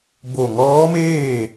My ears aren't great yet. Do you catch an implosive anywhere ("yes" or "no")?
no